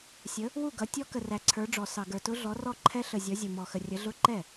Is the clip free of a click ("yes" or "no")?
no